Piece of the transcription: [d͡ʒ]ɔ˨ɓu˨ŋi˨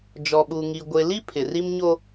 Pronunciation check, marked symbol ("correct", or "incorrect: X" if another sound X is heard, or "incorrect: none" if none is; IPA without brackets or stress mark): correct